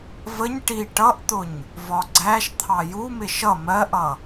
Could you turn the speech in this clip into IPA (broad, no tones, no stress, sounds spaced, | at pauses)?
v ə ɲ ʈ i ʈ ʌ ʔ t̪ ʊ ɲ | v ɒ ɡ͡ǀ æ ʃ t̪ʰ ɑ j u m ɪ ʃ ʌ m ɜ ʔ ʌ